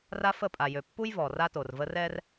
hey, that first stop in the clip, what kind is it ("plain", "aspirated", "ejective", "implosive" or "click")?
ejective